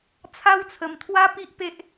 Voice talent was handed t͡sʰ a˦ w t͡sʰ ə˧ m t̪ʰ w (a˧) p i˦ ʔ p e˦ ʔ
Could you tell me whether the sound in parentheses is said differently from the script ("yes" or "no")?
yes